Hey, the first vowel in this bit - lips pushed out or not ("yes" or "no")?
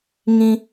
no